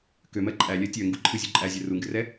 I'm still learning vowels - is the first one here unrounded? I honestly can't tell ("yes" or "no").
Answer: no